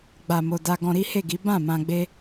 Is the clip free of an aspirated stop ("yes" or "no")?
yes